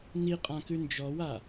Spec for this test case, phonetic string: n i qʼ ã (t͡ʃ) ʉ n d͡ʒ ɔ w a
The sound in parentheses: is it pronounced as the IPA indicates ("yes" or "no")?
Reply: no